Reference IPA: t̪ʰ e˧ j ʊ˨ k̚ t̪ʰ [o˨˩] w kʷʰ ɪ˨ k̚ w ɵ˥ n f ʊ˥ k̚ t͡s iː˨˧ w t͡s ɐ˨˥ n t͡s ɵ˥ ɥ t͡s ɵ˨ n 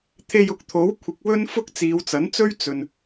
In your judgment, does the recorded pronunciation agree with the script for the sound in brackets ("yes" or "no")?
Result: no